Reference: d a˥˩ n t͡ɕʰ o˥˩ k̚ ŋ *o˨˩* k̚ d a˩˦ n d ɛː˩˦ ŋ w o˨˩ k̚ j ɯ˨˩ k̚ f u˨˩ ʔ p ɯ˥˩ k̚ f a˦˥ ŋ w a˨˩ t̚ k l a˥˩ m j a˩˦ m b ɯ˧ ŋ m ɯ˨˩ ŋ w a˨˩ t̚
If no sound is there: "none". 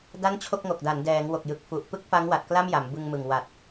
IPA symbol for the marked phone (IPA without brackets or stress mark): o˨˩